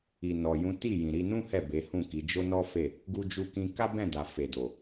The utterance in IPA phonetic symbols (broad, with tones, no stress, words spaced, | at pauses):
i˨nɔ˨jũ˨˦ ti˦˨ jĩ˨ɾi˧nũ˦ hɛ˦˨be˨˦hũ˦˨ki˨˦ d͡ʒo˦nɔ˦fe˦˨ | ɡu˧d͡ʒu˧kĩ˧ ka˦bɛ̃˦˨ da˨ fe˨do˨